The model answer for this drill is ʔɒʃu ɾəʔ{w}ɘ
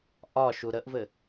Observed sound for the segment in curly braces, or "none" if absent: v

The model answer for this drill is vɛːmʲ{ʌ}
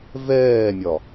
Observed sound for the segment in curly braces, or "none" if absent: ɒ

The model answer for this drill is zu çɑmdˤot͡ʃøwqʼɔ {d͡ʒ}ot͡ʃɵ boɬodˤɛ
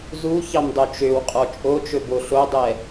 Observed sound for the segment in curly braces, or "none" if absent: t͡ʃʼ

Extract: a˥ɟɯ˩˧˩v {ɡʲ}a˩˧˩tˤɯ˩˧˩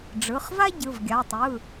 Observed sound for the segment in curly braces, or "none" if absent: ɡʲ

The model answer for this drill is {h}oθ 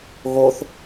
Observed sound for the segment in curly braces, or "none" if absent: ɣ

